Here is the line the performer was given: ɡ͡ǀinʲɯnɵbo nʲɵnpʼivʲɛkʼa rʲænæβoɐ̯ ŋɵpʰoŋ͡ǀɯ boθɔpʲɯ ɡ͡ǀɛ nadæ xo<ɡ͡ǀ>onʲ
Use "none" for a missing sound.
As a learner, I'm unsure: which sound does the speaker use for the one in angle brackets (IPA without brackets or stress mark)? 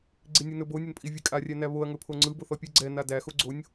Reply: ɡ͡ǀ